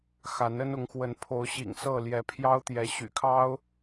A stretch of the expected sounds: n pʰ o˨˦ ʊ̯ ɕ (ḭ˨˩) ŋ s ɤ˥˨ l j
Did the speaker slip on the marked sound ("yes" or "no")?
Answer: no